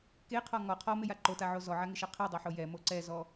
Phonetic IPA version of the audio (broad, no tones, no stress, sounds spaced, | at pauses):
k e qʰ ɔ ŋ ɔ qʰ ɔ m ɪ j a ǃ o t a ʕ o z ɔ ʕ a ŋ ɪ ʃ a qʰ i dˤ i ħ o j ɛ m o ǀ ɛ z ɔ